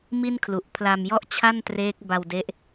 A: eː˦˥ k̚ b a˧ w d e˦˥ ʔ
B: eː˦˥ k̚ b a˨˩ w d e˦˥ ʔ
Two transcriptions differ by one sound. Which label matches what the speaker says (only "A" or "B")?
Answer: A